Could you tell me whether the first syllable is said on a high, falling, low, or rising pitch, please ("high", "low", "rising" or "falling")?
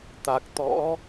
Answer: low